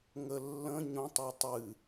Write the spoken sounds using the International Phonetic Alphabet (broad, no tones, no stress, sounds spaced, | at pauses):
ŋ ə lː ə̃ ɲ õ tˤ o tˤ ɨ